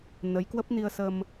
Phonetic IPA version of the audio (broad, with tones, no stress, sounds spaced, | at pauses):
n ə˨˦ j k w ə˦˥ p̚ n i˧ ə̯ s ə˧ m